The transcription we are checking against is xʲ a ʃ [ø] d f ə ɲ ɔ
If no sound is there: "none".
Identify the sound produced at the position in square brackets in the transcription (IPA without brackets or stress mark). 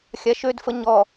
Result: ø